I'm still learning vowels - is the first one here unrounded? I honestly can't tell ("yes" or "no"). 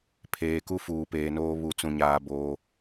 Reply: yes